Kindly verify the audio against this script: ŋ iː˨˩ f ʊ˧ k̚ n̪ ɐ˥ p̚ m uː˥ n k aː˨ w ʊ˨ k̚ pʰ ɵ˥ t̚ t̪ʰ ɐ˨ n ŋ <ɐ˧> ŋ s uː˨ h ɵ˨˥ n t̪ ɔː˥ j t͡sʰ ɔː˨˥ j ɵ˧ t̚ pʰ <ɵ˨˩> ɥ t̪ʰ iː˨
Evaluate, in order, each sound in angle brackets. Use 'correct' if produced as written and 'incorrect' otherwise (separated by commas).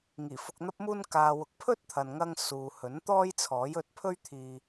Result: correct, incorrect